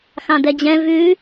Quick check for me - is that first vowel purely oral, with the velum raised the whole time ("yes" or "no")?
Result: no